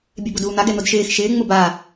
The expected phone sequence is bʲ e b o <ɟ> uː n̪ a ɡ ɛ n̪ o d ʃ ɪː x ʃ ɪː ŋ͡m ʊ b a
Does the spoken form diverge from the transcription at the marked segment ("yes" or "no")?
yes